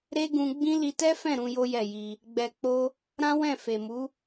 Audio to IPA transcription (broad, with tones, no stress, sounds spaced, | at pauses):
ɾ e˦ ɡ ũ˧ ɡ͡b ĩ˦ l i˧ t ɛ˦ f ɛ̃˦˨ ɾ ũ˧ j o˦ j ɛ˦˨ j i˧ | ɡ͡b ɛ˧ k͡p o˦ | ɾ ã˦ w ɛ̃˦˨ f e˨ m u˨˦